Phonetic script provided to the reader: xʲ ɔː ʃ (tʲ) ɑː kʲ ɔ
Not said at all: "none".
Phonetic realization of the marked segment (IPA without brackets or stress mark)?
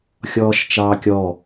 t͡ʃ